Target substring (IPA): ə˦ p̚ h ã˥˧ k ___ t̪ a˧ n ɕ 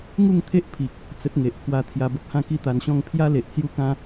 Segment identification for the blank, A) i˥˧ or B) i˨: A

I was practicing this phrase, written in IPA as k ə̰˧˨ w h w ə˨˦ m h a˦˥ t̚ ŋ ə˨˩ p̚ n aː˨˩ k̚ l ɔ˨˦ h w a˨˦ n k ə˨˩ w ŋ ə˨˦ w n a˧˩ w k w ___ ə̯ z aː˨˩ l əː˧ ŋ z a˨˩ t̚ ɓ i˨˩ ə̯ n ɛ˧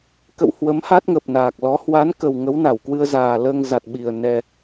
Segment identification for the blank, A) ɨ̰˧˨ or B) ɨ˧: B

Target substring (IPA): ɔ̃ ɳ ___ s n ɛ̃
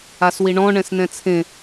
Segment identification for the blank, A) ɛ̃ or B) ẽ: A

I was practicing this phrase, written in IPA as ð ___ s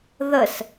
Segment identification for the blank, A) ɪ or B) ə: B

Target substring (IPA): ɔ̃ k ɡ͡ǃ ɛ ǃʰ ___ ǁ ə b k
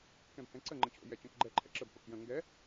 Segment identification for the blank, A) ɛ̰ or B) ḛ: A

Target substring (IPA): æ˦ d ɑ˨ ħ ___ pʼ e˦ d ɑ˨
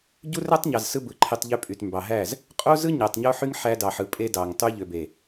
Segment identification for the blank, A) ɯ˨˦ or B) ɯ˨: B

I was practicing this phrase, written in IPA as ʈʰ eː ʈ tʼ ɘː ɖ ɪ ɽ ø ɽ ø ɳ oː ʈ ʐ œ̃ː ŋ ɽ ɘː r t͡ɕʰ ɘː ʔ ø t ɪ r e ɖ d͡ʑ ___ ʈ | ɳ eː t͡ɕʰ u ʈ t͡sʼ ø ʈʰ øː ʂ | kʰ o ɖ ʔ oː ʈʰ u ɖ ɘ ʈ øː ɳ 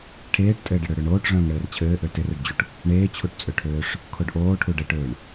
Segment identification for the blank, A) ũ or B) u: B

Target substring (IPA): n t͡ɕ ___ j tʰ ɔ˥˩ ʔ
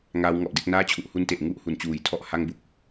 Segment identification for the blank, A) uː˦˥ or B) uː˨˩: B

